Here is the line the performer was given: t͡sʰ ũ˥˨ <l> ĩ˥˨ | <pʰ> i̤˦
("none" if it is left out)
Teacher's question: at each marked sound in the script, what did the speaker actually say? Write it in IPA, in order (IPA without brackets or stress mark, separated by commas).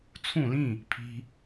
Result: l, pʰ